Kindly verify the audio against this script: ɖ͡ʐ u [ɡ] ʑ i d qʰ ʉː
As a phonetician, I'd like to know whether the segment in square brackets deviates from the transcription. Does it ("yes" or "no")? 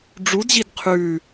yes